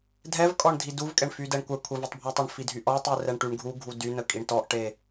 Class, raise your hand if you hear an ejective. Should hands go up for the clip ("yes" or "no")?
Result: yes